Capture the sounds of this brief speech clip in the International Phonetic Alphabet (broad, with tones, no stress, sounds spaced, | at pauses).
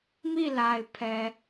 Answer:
m i˦˨ l a˨ ɪ̯ pʰ ɛ˨